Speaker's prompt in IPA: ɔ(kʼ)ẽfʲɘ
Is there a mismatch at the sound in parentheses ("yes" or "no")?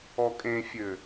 no